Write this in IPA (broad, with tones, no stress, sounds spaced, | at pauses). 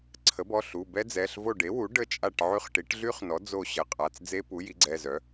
ǀʰ ə˩˥ b ɔ˩˧˩ ɬ u˩˧˩ b ɛ˦˥ d͡z ɛ˩˧˩ ɬ v o˦˨ ɖ e˩˥ w u˩˥ ɖ ə˦˨ t͡ʃʼ a˦˨ ʈ ʕ y˦˨ χ ʈ i˩˥ ʈ ɮ y˦˥ χ n ɔ˩˥ d͡z o˦˨ ɕ ə˩˧˩ qʼ a˩˧˩ t͡s d͡z e˦˥ p u˩˥ j i˩˥ ɡ͡ǀ ɛ˩˧˩ z œ˩˥